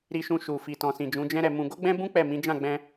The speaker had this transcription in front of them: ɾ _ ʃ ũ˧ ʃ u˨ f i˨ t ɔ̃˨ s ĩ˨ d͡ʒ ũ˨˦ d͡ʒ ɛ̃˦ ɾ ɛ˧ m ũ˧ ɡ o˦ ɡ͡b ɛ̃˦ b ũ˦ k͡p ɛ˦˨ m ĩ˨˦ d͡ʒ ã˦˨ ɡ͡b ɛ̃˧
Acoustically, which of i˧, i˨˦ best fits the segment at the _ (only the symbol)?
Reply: i˧